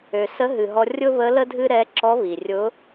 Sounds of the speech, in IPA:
ø˩ s ə˧˥ ɦ ɨ˩ ɦ ɔ˧ rʲ ʊ˥ β ə˧˥ l ə˥ dʱ ɨ˥ ɾ ɛ˧˥ ǁ ɔ˧˥ β i˩ rʲ ʊ˧˥

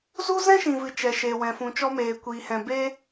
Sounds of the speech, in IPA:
z u˦ z ɛ̃˦ ʃ ĩ˨ v ɨ˨ t͡ʃ ɛ˨ ʃ eː˨ w ɛ̃˨ f ũ˨ t͡ʃ ɔ˧ m eː˨ kʷ iː˨ h ɛ̃˨ b e˧

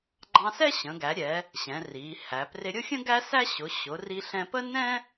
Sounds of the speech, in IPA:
ɡ͡ǃ ɑ̃˧ s ɛ˥ ɕ ə̃˩˧ ɡ æ˩˧ ɾʲ ɛ˩˧ | ɕ ɛ̃˩˧ r i˩˧ h æ˩˧ p r ɪ˧ ɾʲ ʊ˥ xʲ ə̃˥ ɡ æ˥ s æ˥ ɕ ʊ˩˧ ɕ ʊ˩˧ r i˧ ɬ ɛ̃˧ p ə˥ n ɛ̃˥

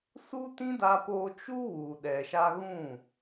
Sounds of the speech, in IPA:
s u˦ t ĩ˦ d a˧ p o˧ t͡ʃ u˦ w u˨ ɗ ɛ˨ ʃ a˧ ɣ ũ˦˨

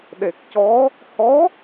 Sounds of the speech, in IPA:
ɗ e˨˩ k̚ c ɔ˧˥ | h ɔ˧˥

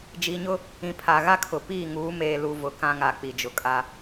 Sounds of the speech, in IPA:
d͡ʒ i˨ ɲ ʊ˦ | ĩ˨ pʰ a˨ ɣ a˦ kʰ ʊ˨ p iː˦˨ ŋ uː˨˦ m eː˨ l u˨ v ʊ˨ k ã˦ ŋ a˨ k͡p i˨ d͡ʒ ʊ˨ kʼ a˦

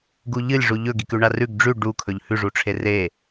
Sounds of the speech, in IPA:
ɡ u ʎ ɨ lʲ ʐ u ʎ ɵ ɡ i k ʉ ɳ a r ʉ ɡ ɖ͡ʐ ʉ ɖ u kʰ ɵ ʎ h ʉ ʐ u ʈ͡ʂʰ e r e

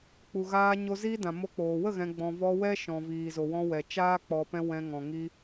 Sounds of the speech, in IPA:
k͡p u˨ ɣ aː˧ ɲ o˧ z iː˦ d ã˨ m o˧ k͡p oː˨ w ə˦˨ ɣ ɛ̃˨ ɡ͡b ɔ̃˨ v ɔ˧ w ɛ˦ ʃ ɔ̃˨ v iː˨ z o˨ w ɔ̃˧ w ɛ˨ t͡ʃ aː˦ k͡p ɔ˨ p ɛ̃˧ w ɛ̃˧ ŋ ɔ̃˨ ŋ i˧

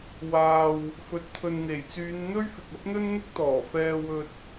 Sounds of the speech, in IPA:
w aː˨ w | f ɵ˨ t̚ t̪ʰ ɵ˨ n n̪ e˨˩ j t͡s yː˨˧ n n̪ ɵ˥ ɥ f ɪ˨ k̚ ɐ˥ p̚ n̪ ɵ˥ n n̪ ʊ˥ k̚ t̪ ɔː˨˩ f ɛː˧ w ɵ˧ t̚

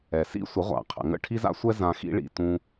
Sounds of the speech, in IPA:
ɛ˩ s ḭ˥ sʷ ə˩˥ ʁʷ a̰˩ qʰ ə̰˩ ŋ ə̰˥˩ ʈʰ i˥ z a̰˥ sʷ ɛ˥ z ã˧ x ḭ˥ ɭ ḭ˥˩ t ũ˧

